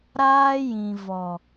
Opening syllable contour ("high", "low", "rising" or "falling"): high